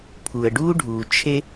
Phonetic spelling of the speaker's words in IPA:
pʰu˨ə̯ ɖuː˦ɖʱuː˨ t͡ʃʰe˦

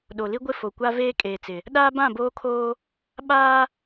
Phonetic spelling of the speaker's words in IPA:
ɗo˨li˦ɡʷɪ˦˨ fo˨kʷa˦ veː˦kʼeː˨t͡sɪ˨ | ɗaː˦bã˦˨boː˦kʰoː˦ | ɓaː˦

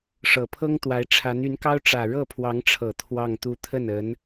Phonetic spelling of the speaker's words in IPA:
ʂɤ˨˩pʰɤ˥ŋt̪wa˧˥ɪ̯ʈ͡ʂʰa˧˥n y˧˥nkɑ˥ʊ̯ ʈ͡ʂä˨˩ ɻɤ˥˩pʰwɑ˧˥ŋʈ͡ʂʰɤ˨˩ t̪ʰwɑ˥˧ŋt̪u˥˧ t̪ʰə˥˩nə˧˥n

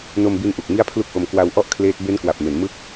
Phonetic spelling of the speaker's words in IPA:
no˧mbi˧nʔu˨˩k̚ mi˥˩a̯pʰlu˥˩k̚ʔo˧m kwa˧wʔɔ˥˩ʔkʰleː˦˥t̚ be˦˥nkwa˨˩p̚me˩˦n mɯ˥˩k̚

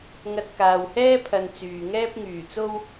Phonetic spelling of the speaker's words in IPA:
ŋɐ˧t̚kaː˨whɛː˥ pʰɐ˧nt͡syː˨ŋɛː˥p̚ ŋyː˨˩t͡so˥w

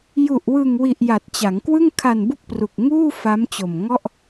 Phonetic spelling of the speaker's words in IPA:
ju˨˩ʔwɯ˨˩ŋwi˨˩ʔ ja˨˩t̚t͡ɕa˩˦ŋkwɯ˥˩ŋ kʰa˨˩n bu˥˩k̚pru˨˩k̚ŋuː˥˩ fa˦˥mt͡ɕo˨˩m ŋɔ˥˩ʔ

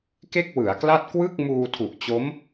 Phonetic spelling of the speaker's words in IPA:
ke˥˩k̚wɯ˩˦a̯kla˥˩t̚ kwɯ˥˩k̚muː˧ tʰu˨˩ʔt͡ɕo˦˥m

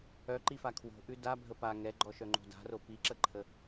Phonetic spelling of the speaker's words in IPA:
œǃifa kʰwo̤ʔʉ dabʱə pa ŋɛɡ͡ǃɔʃœŋ͡ǃo̤ da̤ro piǁəǃʰə

